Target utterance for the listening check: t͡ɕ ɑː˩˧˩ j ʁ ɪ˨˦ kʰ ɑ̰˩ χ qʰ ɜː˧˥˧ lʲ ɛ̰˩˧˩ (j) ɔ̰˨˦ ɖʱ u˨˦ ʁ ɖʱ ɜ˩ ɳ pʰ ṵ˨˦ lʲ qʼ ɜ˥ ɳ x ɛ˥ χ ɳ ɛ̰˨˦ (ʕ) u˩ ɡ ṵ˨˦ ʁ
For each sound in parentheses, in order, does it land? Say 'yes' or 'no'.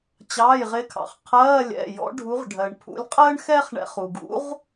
yes, no

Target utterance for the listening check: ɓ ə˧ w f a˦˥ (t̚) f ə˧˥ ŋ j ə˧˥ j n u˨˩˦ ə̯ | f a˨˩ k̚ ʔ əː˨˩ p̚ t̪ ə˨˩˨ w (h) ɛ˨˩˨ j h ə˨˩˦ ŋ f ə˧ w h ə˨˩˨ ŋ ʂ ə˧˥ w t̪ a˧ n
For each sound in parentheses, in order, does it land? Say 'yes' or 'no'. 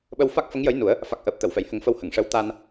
no, no

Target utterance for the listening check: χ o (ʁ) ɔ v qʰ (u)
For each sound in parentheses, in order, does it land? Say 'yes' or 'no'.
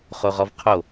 yes, no

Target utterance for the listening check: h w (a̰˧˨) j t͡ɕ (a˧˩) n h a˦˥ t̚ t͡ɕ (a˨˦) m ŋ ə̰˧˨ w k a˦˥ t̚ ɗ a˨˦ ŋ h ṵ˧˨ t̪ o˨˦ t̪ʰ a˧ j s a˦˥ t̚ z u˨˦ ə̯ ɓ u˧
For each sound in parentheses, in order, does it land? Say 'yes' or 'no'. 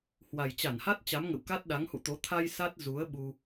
no, yes, yes

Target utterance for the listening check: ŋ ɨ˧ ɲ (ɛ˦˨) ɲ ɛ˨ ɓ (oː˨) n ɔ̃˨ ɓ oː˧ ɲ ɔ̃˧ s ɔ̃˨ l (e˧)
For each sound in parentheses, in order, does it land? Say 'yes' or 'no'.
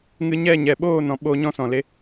yes, no, yes

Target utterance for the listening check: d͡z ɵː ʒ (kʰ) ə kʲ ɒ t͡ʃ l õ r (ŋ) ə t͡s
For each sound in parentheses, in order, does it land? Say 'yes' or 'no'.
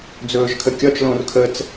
yes, no

